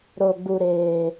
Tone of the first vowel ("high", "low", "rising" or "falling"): low